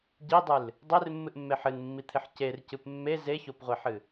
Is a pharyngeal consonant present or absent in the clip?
present